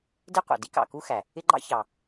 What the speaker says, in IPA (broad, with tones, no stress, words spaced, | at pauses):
dɪ˥qʷɑ̰˩ di˥ kɑ̰˩ ku˥xæ˩ | ɪ˥ɡ͡ǃɑ̰˥çɑ˩